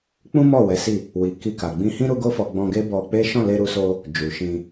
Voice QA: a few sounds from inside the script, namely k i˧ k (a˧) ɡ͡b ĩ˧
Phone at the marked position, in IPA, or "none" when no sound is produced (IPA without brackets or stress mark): a˨